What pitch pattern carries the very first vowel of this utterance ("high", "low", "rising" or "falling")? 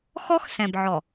high